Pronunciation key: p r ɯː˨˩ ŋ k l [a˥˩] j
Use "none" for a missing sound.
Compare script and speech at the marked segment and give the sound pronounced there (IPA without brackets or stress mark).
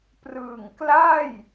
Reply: a˥˩